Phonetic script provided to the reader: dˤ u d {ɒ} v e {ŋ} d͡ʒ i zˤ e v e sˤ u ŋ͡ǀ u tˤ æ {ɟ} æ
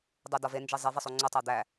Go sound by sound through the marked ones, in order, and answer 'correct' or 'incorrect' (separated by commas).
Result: correct, incorrect, incorrect